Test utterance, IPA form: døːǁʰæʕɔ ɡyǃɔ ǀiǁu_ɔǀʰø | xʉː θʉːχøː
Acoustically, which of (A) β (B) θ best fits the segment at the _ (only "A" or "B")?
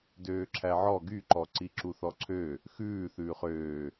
B